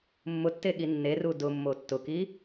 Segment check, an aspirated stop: absent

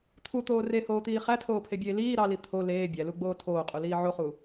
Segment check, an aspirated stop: present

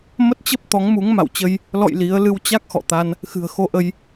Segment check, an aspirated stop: absent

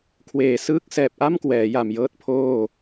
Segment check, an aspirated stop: present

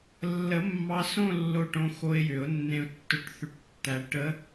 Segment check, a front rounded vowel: present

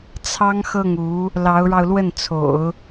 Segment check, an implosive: absent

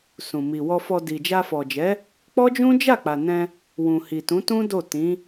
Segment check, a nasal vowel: present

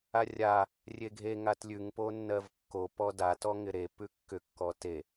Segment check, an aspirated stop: absent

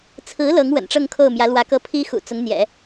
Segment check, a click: absent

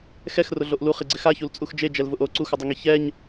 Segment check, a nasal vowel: absent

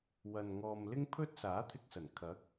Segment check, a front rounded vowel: absent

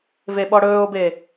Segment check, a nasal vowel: absent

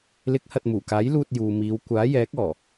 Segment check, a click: absent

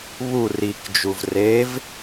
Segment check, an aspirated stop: absent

